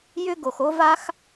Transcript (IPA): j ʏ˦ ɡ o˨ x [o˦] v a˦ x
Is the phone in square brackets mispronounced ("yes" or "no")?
no